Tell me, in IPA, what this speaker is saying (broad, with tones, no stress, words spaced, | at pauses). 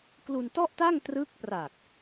klu˧ntɔ˥˩ʔta˥˩ŋ trɯ˦˥k̚pra˨˩k̚